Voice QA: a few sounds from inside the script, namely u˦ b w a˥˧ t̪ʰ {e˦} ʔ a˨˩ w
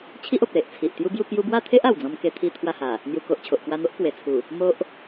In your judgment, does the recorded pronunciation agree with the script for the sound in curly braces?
yes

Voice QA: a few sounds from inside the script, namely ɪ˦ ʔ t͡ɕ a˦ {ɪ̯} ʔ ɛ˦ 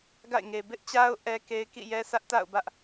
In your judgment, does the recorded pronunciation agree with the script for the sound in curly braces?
no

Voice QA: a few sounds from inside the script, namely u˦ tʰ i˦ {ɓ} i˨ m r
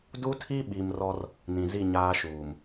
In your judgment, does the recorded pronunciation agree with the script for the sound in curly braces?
yes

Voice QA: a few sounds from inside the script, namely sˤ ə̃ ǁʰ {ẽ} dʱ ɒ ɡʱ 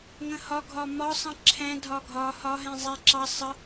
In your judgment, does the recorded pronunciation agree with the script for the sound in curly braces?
no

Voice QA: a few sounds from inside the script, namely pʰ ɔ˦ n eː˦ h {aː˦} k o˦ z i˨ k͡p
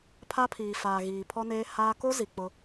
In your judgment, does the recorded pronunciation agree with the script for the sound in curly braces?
yes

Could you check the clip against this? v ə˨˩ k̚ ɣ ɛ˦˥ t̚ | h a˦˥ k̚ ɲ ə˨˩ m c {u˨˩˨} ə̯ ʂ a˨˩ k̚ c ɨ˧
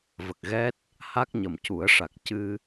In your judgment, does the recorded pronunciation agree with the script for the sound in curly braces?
no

